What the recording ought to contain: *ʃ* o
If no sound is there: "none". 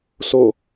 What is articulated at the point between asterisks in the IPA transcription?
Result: s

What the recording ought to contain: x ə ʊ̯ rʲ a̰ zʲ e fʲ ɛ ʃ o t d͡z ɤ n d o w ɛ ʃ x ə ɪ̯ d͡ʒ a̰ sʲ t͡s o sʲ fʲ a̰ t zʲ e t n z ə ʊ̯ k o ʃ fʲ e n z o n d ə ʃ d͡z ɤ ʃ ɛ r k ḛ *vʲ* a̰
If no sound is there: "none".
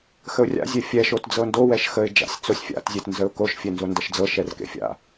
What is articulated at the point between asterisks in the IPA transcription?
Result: fʲ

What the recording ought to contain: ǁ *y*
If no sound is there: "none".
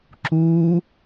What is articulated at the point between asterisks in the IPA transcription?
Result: u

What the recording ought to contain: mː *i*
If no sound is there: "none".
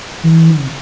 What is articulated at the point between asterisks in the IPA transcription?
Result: i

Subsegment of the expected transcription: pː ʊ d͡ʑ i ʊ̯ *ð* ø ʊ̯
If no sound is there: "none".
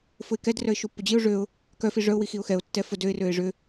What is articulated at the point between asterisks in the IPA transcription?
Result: ʐ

